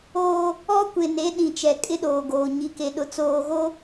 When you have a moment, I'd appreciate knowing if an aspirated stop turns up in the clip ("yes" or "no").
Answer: no